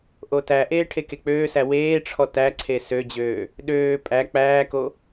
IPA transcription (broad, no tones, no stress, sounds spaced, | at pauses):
ʔ o t æ ʔ eː ʈʰ e k e k͡p øː s æ w eː ʈ͡ʂʰ ɔ t æ ǀʰ e s ø d͡ʑ øː | ɗ øː pʼ æ k͡p æː k o